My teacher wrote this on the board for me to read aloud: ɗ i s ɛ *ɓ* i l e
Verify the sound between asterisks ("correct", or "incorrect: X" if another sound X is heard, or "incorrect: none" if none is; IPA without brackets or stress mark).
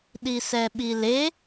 correct